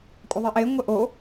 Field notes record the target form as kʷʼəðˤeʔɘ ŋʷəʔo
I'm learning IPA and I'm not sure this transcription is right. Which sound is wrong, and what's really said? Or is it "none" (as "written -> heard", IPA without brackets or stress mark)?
ɘ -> e